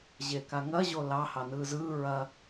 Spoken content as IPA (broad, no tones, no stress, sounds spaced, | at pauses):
ʑ e k a ŋ ɐ ʑ o l ɑ h ɑ n ɯː z ɯː ɹ ɐ